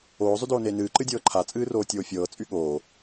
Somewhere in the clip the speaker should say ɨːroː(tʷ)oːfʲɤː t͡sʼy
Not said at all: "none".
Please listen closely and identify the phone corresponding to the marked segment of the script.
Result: tʲ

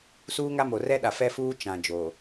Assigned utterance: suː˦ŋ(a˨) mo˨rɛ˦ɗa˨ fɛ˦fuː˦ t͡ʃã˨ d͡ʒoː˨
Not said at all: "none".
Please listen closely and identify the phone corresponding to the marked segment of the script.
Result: a˦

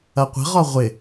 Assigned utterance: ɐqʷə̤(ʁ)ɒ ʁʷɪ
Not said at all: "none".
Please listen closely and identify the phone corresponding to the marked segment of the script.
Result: ʁ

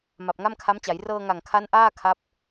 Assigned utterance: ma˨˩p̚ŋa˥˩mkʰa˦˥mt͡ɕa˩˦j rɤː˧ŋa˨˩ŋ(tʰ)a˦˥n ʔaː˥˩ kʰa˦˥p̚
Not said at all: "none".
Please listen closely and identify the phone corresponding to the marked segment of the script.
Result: kʰ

